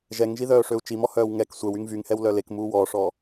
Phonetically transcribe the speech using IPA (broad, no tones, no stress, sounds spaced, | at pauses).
ʒ ɛ ŋ ʒ i ð œː ʂ ø u̯ t͡ʃ i m ɔ h œː w ŋ ɛ k sʷ ɛ w y ŋ v y ŋ h ɛ w l œ l e k m uː w ɔː ʂ ɔ